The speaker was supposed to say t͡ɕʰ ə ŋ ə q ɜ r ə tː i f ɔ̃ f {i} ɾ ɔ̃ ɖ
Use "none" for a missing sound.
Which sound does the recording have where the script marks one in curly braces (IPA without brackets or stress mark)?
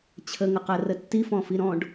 i